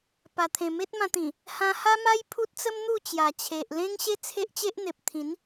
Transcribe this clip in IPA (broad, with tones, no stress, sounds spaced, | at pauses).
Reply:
p a˨˩ t̪ʰ ẽ˨˩ m e˦ t̚ m ã˧ t̪ ĩ˨˩ | h ã˧ h a˦ m a˦ j pʰ u˦ t̚ t͡s ə˦ m n̪ u˥˧ t͡ɕ j a˨˩ t͡ɕʰ e˨ ʔ l ẽ˦ ŋ ɕ e˦ t͡sʰ e˦ ʔ t͡ɕ e˦ ʔ n̪ e˨ p̚ t̪ʰ ĩ˨˦ n